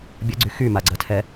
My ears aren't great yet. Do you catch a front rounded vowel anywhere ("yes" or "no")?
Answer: yes